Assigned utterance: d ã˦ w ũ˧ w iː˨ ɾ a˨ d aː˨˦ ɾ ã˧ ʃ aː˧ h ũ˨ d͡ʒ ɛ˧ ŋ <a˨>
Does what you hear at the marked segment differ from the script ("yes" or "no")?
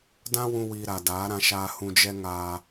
no